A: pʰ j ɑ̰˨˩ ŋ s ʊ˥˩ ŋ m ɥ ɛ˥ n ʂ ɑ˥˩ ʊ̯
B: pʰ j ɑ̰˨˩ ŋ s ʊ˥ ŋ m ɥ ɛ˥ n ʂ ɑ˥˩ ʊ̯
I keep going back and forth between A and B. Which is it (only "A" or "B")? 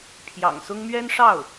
B